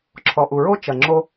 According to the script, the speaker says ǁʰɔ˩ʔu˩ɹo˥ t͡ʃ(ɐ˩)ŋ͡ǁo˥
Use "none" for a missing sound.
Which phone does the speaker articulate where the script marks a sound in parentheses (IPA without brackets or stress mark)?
ɐ˩